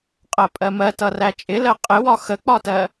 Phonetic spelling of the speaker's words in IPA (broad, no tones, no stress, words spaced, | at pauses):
qʼɜpʼɜmɜ tʌræt͡ʃʼɪ lɜqʼɪwɒ xək͡pɒtɜ